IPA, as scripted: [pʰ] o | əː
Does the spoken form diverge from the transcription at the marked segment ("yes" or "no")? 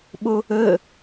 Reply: yes